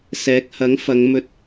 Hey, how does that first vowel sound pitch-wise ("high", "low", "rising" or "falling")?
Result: rising